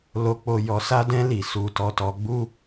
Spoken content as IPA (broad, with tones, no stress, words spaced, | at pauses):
lo˧ k͡po˧jɔ˧ sa˦dɛ̃˦ li˦˨ su˧ tɔ˧tɔ˧ɡ͡bu˦